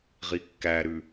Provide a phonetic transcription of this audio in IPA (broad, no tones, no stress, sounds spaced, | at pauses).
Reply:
ʁ i kː æ ɾ ʉ